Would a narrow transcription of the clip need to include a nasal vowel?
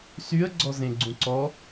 yes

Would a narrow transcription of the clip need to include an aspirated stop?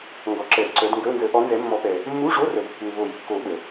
no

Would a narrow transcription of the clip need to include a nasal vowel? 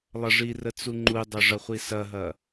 no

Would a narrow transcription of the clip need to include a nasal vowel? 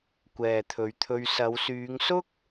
no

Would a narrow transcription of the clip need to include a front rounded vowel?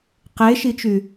yes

